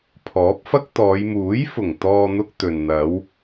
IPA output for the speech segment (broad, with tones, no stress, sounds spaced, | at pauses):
pʰ ɔː˨˥ p̚ f ɐ˥ k̚ t̪ ɔː˨˧ j m uː˨˥ j f ʊ˨˩ ŋ t̪ ɔː˧ n̪ ʊ˧ k̚ t̪ ɵ˨ n n̪ ɐ˨˧ w